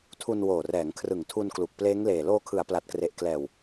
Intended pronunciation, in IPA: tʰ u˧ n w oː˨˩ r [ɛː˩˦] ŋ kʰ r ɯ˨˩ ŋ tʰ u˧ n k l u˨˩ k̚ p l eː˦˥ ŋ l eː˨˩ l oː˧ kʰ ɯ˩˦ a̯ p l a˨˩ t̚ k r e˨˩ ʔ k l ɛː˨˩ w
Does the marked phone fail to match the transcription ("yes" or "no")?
no